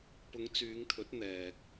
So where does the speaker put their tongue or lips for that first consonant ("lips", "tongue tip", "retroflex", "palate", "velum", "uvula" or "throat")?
lips